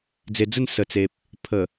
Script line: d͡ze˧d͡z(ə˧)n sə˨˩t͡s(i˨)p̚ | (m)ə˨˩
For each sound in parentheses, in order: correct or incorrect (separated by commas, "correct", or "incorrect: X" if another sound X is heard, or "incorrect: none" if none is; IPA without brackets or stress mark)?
incorrect: ə˥˧, incorrect: e˨, incorrect: pʰ